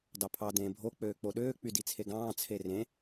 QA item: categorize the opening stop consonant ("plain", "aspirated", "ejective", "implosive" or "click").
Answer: plain